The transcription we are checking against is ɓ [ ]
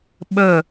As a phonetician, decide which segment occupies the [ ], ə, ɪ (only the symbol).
ə